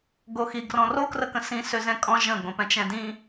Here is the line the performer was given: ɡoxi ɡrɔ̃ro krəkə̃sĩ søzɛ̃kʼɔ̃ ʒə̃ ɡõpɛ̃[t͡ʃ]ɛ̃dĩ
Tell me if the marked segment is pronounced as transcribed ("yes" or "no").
yes